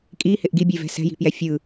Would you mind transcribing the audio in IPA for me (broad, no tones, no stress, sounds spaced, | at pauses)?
kʼ i h ɪ ʔ ɡ i bʲ e v ɛ̤ s ɛ̤ j i̤ p j ɛ fʲ ɯ